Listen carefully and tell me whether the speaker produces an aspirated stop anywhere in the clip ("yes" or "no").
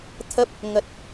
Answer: yes